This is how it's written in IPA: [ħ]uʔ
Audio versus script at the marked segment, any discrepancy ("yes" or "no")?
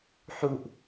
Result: no